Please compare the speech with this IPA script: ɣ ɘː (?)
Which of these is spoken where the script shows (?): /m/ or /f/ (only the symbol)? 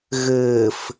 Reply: f